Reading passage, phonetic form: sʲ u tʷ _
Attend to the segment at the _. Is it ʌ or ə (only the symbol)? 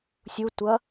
ʌ